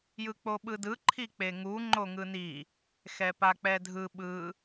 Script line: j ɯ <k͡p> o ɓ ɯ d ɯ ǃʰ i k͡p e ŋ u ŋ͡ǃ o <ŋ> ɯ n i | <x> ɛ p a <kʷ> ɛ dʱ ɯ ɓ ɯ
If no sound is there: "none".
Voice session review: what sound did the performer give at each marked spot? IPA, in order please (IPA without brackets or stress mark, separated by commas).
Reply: k͡p, ŋ, x, k͡p